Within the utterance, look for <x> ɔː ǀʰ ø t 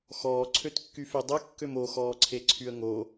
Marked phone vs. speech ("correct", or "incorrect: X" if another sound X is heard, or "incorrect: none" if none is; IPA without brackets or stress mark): correct